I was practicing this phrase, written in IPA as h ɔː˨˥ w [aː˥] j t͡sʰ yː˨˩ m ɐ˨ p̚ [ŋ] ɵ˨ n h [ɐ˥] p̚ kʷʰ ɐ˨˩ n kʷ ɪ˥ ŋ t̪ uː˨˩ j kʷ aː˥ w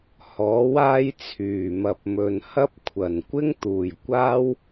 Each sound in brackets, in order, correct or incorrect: correct, incorrect, correct

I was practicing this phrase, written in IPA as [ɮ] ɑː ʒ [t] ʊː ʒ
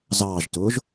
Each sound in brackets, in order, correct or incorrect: incorrect, correct

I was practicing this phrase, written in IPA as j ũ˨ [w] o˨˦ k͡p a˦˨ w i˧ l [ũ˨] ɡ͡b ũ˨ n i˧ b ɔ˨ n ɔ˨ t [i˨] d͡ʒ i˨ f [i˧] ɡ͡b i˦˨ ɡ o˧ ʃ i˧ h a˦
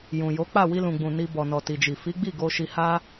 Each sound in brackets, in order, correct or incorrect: incorrect, correct, correct, incorrect

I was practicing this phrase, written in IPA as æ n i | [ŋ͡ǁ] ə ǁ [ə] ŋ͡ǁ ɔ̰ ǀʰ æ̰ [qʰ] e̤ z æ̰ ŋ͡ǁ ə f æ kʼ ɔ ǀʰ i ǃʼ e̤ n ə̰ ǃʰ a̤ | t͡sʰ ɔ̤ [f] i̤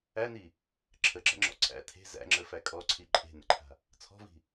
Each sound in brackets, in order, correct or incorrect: incorrect, incorrect, incorrect, incorrect

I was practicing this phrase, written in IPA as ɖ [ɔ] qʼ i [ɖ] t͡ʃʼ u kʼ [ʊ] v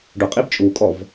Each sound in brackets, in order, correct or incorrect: incorrect, incorrect, incorrect

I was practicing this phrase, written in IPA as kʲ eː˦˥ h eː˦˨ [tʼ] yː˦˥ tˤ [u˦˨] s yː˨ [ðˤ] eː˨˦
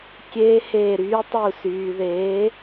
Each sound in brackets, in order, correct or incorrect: incorrect, correct, incorrect

